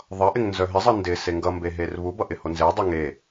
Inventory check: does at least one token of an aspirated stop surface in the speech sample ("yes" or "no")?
no